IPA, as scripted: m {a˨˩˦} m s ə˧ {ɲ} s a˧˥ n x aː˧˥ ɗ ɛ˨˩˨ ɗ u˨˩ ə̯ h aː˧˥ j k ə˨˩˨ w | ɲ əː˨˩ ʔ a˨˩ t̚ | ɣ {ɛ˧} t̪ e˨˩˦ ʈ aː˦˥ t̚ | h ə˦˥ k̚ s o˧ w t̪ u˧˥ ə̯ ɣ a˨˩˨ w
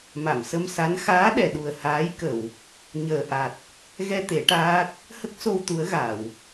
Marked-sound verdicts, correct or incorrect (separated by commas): incorrect, incorrect, correct